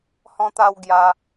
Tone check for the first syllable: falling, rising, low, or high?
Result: high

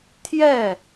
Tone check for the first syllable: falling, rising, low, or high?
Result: falling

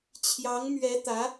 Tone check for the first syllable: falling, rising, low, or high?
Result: rising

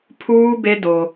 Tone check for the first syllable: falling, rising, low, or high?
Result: high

